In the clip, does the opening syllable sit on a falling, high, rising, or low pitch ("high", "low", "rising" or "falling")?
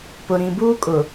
low